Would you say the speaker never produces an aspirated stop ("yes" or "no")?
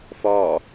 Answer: yes